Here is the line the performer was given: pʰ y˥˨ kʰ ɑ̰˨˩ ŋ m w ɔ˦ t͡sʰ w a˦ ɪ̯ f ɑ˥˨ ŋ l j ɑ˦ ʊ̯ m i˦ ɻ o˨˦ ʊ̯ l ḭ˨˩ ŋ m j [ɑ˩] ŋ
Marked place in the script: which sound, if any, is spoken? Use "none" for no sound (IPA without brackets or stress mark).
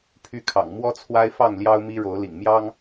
ɑ˦